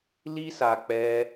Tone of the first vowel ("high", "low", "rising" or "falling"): high